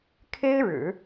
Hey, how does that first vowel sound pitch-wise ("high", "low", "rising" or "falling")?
high